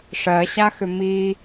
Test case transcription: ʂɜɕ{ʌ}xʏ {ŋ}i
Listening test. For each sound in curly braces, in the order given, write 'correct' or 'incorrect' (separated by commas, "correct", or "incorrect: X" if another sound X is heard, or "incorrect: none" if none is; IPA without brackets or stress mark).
incorrect: a, incorrect: m